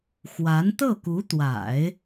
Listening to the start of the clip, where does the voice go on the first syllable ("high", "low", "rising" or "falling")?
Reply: rising